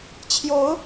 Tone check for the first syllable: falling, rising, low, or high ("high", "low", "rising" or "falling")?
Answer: rising